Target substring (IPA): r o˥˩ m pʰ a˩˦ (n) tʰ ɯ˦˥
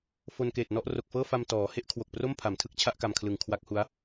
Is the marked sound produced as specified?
no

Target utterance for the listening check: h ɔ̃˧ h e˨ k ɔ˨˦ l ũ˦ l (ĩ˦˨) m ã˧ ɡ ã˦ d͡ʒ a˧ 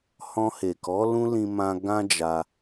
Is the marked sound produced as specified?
no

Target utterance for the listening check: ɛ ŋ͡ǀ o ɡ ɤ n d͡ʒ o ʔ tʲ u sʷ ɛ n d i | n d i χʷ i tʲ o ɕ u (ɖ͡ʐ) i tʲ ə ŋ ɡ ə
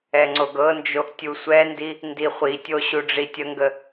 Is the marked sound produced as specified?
yes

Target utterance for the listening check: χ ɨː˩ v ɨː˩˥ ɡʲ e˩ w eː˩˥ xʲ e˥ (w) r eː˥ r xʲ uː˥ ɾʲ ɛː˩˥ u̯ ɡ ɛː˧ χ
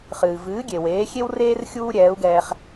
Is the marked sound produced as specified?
yes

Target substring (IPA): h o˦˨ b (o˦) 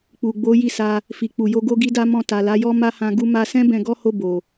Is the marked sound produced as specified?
no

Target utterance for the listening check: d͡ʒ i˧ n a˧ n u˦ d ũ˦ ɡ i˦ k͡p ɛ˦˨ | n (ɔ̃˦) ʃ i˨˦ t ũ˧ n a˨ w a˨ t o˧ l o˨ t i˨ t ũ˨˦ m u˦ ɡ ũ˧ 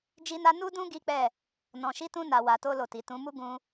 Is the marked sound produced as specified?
no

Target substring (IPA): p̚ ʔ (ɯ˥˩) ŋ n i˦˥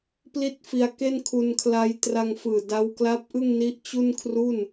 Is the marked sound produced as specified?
yes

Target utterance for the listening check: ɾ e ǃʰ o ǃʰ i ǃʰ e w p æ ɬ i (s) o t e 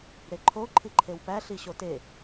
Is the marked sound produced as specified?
no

